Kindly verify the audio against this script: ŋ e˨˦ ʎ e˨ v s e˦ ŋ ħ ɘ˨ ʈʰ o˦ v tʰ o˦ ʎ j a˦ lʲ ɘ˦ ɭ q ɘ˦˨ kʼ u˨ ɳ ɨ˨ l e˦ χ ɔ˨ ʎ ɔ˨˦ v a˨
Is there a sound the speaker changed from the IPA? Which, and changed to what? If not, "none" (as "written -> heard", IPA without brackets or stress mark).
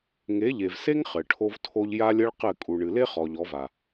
ħ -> χ